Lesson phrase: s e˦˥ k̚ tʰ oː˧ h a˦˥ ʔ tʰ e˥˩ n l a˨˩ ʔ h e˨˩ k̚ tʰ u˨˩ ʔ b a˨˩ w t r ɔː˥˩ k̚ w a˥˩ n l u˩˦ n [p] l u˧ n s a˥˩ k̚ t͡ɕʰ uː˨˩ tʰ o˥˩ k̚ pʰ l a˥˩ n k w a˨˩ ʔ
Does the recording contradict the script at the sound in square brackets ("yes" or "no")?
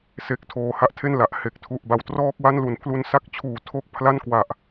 yes